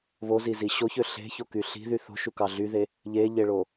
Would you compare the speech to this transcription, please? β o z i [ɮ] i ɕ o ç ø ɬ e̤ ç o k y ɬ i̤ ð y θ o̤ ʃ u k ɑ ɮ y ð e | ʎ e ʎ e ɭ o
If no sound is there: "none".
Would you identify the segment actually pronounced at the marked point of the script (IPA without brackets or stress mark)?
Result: z